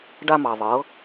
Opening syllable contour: high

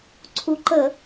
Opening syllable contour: rising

